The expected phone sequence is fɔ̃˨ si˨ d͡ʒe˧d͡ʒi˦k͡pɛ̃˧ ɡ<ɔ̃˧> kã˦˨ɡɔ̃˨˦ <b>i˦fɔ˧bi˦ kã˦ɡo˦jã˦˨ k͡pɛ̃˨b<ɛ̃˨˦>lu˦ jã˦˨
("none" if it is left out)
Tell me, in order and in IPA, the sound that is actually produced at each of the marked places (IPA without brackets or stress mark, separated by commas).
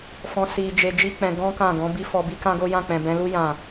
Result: ɔ̃˦, b, ɛ̃˨˦